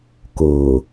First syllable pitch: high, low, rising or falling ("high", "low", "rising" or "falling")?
low